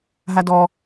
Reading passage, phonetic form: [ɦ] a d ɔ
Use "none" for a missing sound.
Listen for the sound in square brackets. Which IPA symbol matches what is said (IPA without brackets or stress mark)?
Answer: ɦ